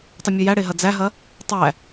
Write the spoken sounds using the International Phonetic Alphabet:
tˤ ə mʲ ɐ j æ ɽ e ɦ ɐ d͡z æ ɦ ɐ | tˤ æ

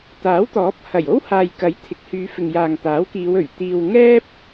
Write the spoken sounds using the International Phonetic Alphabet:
t̪ aː˨˥ w t̪ ɔː˨˥ p̚ h ɐ˨˩ j o˥ w h aː˨ j k ɐ˨˥ j t̪ʰ ɪ˨ k̚ h yː˨˧ f ɪ˨ ŋ j aː˨ ŋ t̪ aː˨˥ w k iː˨˧ w ɵ˨˩ ɥ t̪ iː˧ w ŋ ɛː˥ p̚

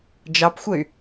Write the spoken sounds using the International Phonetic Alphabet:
d͡ʒ ɑ p xʷ ə y̯

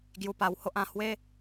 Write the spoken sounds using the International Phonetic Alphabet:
ɡ j u˧ p a˧ w h o˦ ʔ ã˥˧ h w e˦

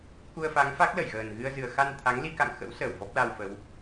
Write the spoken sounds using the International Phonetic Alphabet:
k u˧ ə̯ f a˨˦ ŋ f a˦˥ k̚ l ə˧˩ j ɣ əː˨˩ n ɣ ɨ˧ ə̯ z ɨ˨˩ ə̯ x a˧ n t̪ʰ a˨˦ ŋ l i˧ k a̰˧˨ ŋ x ə̰˧˥ w s əː˧˩ w v ɔ˦˥ p̚ l a˧ w f ə˨˦ w

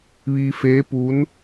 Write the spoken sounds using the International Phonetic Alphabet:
ʋ iː˧ f eː˧˥ p uː˧˥ n

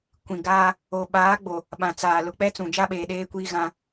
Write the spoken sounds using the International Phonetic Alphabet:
kʷ ĩ˨ ɡ aː˦ | o˨ ɓ aː˨˦ ɡ͡b o˨ | ɓ ã˨ t͡s aː˨ l ʊ˨ k͡p ɛ˦ t͡s ũ˨ d͡ʒ a˦ ɓ eː˨ ɗ eː˦ kʷ iː˦ ɣ ã˦

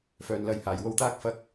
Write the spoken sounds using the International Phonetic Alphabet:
f œː˨ n l ɐ˨˧ j h aː˨˩ j w o˧ w t̪ aː˥ k̚ f ɐ˧ k̚

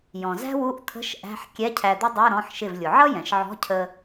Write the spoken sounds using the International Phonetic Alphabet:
j ɔ̃˩ z æ̤˥ w u˧˥˧ ʔ t̪ʰ ə̤˧˥˧ ʃ ʔ æ̤˧˥˧ ħ kʲ ɛ˧˥˧ cʰ æ˧ d̪ ʊ˥ dˤ ə˞˧˥˧ ɾ ɔ̃˩˧˩ ħ ʃ ɪ˧˩ v lʲ ʊ˩ ʕ ʌ˥ j ɛ̃˩ ʃ ʕ ɔ̤˧˥˧ cʰ ə˧

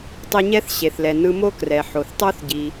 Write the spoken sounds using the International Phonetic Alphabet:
tˤ i˧ ɲ ɛ˥ θ ɕ e˩ θ l ɛ˩ n ɯ˧ m o˥ k r ɛ˩ ħ o˩ θ tˤ o˥ θ ɟ i˩

